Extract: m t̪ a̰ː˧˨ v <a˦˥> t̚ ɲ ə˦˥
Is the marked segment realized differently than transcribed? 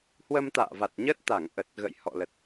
yes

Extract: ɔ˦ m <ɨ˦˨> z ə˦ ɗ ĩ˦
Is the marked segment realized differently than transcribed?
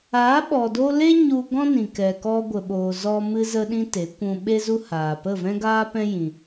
yes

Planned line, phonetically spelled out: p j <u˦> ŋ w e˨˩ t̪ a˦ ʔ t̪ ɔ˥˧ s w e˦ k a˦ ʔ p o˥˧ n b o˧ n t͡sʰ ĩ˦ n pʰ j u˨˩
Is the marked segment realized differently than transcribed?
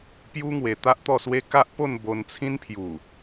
no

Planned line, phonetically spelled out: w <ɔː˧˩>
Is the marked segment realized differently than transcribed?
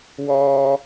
yes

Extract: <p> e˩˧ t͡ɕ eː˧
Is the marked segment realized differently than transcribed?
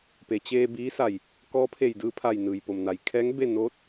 no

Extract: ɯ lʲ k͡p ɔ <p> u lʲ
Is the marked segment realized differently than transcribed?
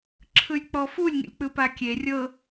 yes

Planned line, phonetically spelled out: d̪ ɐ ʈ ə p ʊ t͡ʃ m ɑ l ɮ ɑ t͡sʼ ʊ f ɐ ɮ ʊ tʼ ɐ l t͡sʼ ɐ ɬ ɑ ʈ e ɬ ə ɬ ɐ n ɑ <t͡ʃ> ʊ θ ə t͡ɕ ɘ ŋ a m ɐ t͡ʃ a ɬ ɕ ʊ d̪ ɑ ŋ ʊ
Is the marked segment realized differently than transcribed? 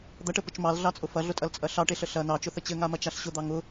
no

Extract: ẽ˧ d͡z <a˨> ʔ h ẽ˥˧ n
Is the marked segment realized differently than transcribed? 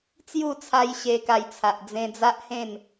yes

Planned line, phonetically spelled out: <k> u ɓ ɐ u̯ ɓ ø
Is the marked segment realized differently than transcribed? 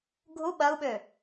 yes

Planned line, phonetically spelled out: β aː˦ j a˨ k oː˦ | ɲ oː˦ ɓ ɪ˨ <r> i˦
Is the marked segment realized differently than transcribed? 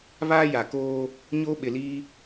yes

